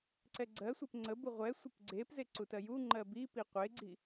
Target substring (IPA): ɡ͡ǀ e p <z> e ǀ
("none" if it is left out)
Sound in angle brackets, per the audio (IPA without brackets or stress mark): z